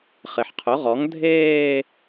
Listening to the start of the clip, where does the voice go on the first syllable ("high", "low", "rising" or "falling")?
low